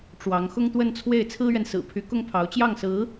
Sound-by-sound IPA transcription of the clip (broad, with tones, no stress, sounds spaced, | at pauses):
ʈ͡ʂ w ɑ˧˥ ŋ x ʊ˥ ŋ t̪ w ə˥˧ n t͡sʰ w e˥˩ ɪ̯ t͡sʰ ɹ̩˥ ɥ ɛ˨ n s ɹ̩˨˩ pʰ y˧˥ k ʊ˥ ŋ pʰ ɑ˧˥ ʊ̯ t͡ɕ j ɑ˥˩ ŋ s ɹ̩˧˥